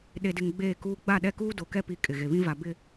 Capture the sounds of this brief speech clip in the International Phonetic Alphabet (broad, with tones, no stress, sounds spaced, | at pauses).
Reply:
ɗ e˨ d ɪ˨ ŋ ɡ͡b eː˦˨ k uː˦ ɡ͡b a˦˨ ɗ ɛ˦ k uː˦ d o˨ k ɛ˦ p i˨ kʼ ɪ˨ ɣ e˨ β ĩ˦ v a˨ b ɪ˨